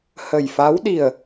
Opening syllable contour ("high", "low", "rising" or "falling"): low